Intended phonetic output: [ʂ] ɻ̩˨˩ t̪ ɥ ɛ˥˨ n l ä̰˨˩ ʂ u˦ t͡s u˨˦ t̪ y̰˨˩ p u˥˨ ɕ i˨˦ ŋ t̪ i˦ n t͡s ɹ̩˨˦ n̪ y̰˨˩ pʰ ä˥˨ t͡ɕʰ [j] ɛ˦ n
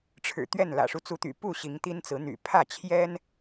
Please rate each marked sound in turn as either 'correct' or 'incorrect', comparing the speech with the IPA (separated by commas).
incorrect, correct